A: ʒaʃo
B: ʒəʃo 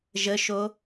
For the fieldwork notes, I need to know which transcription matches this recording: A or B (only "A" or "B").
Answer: B